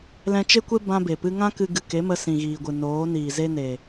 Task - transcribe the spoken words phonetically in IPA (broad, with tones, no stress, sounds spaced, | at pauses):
l ɛ̃˧ t͡ʃ e˦ kʷ e˦ b ã˧ b e˨ p ɨ˧ ŋ ã˦ k ɨ˧ ɡ ɨ˨ k e˨˦ m ə˧ s ĩ˨ ɣ iː˨ ɡʷ ɨ˨ n oː˨˦ n iː˨ z e˦ n e˨